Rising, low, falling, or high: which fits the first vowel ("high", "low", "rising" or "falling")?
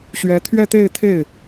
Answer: rising